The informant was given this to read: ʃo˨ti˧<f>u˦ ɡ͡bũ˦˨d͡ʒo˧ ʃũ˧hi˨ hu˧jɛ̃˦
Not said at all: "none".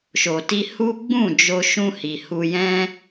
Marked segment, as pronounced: h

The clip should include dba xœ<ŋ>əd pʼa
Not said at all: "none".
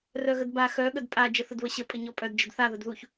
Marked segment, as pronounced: ɠ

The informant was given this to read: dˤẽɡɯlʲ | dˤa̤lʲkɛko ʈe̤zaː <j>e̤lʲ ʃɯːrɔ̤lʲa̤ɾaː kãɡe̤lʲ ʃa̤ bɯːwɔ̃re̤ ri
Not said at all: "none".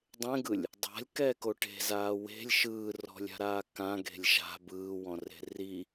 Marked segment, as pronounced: w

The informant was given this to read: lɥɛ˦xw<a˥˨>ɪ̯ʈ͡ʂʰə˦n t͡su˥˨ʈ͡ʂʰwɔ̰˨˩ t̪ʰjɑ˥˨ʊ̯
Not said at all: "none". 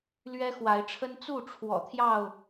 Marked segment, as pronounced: a˨˦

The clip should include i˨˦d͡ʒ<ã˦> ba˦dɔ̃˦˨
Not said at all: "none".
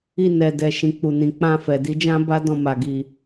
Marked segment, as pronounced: ã˦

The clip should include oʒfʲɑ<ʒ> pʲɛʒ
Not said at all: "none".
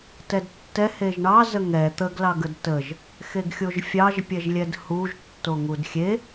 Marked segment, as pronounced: ʒ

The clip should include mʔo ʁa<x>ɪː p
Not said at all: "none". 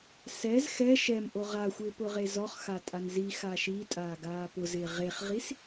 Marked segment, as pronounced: xʷ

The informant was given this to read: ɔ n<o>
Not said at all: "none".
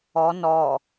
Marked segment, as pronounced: ɔ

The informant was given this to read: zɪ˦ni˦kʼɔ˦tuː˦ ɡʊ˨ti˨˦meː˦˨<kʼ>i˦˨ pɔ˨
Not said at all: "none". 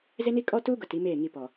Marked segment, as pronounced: ŋ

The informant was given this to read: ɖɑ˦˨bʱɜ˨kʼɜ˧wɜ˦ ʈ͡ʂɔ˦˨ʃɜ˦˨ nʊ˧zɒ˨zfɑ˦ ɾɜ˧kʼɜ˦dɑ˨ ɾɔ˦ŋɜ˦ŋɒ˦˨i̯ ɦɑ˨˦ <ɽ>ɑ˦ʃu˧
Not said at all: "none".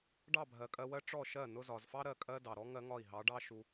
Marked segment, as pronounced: ɖ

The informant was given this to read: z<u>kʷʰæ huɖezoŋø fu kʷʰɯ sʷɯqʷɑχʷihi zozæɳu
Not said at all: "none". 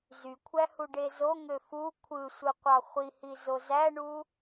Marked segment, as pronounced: y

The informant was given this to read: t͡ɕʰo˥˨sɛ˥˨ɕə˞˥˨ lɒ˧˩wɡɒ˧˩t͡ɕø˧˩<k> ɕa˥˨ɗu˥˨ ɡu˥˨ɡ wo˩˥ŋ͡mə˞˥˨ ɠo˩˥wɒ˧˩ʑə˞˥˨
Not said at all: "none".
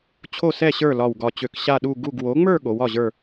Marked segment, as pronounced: k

